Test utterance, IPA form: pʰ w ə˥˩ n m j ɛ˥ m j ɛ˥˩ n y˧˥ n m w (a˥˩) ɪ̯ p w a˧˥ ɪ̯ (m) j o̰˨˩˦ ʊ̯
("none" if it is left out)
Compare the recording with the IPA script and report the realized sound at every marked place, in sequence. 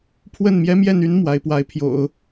a˧˥, pʰ

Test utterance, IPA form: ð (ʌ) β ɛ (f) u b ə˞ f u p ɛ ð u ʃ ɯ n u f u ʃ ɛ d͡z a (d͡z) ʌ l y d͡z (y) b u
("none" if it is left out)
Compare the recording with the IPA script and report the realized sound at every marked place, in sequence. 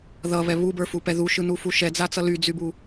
ʌ, β, t͡s, y

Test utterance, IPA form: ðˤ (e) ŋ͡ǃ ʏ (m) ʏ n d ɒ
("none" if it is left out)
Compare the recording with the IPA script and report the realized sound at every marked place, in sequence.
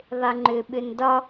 e, ɓ

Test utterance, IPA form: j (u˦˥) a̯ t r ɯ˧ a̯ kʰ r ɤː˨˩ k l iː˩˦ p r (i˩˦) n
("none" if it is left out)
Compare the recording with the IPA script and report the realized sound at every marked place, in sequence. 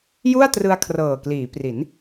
u˥˩, i˩˦

